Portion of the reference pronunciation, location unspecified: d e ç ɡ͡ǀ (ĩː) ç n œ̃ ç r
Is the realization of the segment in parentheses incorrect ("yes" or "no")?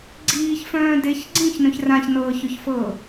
no